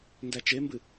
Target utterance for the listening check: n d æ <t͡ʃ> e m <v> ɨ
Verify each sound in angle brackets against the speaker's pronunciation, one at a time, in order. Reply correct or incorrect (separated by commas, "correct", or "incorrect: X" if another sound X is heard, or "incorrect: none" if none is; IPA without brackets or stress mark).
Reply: correct, incorrect: b